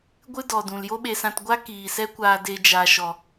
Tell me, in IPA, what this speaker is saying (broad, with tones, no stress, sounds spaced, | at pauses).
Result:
ɡʷ ɨ˦ d ɔ˨ d ũ˨ l j o˦ ɓ e˧ s ã˧ t ɡʷ a˦ k iː˨ s ɛ˦ kʷ aː˧ d e˧ d͡ʒ a˨ ʃ ɔ˨